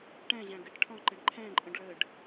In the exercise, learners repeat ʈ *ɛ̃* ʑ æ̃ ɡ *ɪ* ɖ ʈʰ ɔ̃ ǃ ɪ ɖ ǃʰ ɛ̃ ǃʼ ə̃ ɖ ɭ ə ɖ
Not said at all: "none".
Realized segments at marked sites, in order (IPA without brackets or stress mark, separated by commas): ɛ̃, ɪ